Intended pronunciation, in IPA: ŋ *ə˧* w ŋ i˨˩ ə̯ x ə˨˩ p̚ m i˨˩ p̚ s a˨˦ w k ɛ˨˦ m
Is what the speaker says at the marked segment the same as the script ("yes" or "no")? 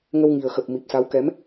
yes